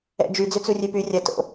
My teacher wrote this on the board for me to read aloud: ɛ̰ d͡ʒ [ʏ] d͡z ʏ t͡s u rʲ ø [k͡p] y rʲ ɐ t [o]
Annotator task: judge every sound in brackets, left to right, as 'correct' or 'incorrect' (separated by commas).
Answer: incorrect, incorrect, incorrect